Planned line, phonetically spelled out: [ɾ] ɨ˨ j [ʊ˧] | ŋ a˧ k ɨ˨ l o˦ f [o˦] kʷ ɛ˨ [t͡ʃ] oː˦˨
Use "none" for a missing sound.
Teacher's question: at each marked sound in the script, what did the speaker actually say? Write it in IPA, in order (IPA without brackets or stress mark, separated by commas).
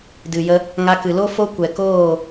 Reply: d, ə˧, o˦, k